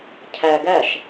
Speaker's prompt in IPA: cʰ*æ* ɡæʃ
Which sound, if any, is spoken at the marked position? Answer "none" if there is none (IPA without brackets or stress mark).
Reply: æ